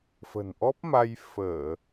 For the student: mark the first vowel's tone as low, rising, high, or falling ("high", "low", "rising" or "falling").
low